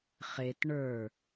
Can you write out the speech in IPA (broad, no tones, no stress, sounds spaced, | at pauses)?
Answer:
χ e t ɳ ə˞